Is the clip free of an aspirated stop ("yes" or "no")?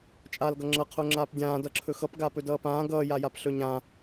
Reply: no